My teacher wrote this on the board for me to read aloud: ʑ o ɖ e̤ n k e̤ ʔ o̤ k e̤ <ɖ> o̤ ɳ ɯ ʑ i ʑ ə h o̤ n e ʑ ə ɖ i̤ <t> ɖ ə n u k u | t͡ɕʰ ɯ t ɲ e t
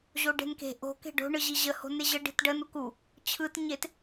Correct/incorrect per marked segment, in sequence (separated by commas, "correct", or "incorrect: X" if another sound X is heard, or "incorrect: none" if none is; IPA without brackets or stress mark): correct, correct